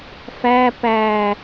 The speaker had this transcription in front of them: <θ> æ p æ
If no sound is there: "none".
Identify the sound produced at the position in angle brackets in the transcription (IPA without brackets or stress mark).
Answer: f